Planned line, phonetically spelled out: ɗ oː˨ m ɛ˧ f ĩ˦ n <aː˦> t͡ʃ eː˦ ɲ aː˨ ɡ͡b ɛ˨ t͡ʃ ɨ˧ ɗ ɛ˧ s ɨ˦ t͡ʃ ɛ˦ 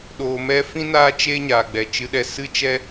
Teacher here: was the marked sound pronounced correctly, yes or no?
yes